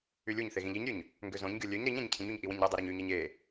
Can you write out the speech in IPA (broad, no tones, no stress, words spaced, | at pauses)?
ylʲuɲθe ɣĩʎiɲɾʲøɲ | ŋɡøzõɲɡʲo lʲøɲ ɾiɲæ̃ɲ cʰĩɲuɲ ʔiwĩɲɾedˤy ɾoɲyɲæɲ e